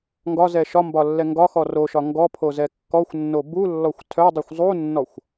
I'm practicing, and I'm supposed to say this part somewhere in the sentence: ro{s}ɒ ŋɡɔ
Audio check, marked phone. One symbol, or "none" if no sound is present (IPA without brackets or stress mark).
ʃ